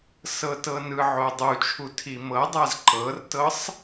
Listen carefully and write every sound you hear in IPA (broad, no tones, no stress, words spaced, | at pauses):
sɤtɤnɯʕo dˤut͡ʃʰu tʰimɤdˤaz ǃɤrtɤsˤ